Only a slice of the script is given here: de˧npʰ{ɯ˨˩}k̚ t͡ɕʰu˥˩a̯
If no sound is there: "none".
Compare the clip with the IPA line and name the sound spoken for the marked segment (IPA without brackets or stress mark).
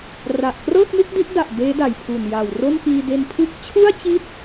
ɯ˥˩